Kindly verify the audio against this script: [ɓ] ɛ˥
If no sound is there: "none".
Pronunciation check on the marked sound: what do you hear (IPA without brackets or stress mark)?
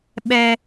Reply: ɓ